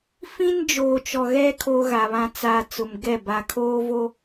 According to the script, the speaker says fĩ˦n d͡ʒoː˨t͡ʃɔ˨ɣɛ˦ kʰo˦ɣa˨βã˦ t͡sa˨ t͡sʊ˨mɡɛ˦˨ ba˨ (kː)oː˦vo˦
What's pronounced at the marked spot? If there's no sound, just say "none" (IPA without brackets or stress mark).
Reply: kʰ